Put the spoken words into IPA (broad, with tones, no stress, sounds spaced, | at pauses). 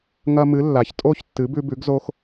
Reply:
ŋ ɐ˧ m ɨ˩˥ lː a˩ ç tʼ o˥˩ ç tː ɨ˩˥ b ʉ˧ b ʉ˩˥ ɡ z o˧ x